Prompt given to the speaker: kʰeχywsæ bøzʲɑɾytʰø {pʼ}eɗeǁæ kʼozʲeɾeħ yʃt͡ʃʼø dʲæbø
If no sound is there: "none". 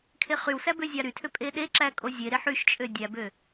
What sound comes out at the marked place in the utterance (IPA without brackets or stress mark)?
pʼ